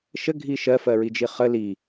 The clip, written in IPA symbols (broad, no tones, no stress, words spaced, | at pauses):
ʃəɡʱi ʃɜfɜɹid͡ʒi χə li